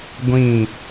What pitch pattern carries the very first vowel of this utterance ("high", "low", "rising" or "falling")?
falling